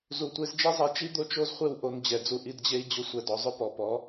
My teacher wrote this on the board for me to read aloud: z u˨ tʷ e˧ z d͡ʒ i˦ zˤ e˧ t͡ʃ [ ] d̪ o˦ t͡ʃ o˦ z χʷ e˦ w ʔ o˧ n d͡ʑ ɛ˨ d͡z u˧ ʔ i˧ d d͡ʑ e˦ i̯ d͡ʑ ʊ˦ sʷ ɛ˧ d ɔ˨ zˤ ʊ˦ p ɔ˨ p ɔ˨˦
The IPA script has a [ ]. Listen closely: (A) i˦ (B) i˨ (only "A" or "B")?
A